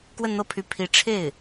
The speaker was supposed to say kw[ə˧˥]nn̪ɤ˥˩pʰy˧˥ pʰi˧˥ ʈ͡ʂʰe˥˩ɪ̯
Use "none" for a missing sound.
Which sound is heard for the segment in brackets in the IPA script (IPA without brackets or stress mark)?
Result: ə˥˧